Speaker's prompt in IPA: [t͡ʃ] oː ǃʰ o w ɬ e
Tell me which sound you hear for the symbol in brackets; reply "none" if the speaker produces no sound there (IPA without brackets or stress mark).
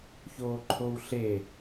ç